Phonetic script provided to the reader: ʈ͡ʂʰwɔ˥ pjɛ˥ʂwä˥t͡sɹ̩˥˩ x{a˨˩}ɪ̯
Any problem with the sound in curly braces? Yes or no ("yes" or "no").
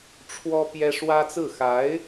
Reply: yes